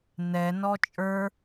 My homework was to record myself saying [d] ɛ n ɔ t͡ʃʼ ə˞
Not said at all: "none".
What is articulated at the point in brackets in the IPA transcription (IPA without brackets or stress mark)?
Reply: n